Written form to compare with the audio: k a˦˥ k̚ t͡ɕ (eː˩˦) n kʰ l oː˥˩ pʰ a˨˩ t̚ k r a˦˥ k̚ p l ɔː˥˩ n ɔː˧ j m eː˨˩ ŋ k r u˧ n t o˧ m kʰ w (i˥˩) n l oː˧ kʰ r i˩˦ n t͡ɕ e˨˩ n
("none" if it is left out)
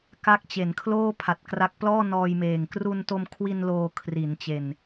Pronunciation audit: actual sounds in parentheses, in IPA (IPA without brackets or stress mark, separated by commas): e˩˦, i˧